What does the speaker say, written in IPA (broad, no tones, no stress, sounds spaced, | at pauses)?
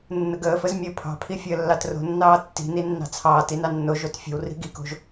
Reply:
nː ə ɡ əː f ə z mʲ əː pʰ ɑ̤ pʰ i fʲ əː lː ɑ t r o̤ nː ɑː tː i̤ n i nː ɑ̤ t͡sʰ ɑː t i n ɑ nː o ʒ o t fʲ ə̤ w r i̤ ɡ i k o̤ ʒ